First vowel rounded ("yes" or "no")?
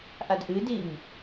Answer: no